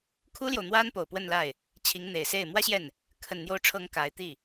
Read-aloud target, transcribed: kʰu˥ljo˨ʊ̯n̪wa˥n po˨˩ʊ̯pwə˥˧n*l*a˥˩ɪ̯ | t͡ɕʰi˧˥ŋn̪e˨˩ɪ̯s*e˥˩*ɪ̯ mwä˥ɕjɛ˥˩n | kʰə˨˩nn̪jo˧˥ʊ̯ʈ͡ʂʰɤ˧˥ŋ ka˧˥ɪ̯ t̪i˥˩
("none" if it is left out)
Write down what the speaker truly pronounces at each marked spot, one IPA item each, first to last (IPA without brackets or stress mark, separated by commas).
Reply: l, e˥˩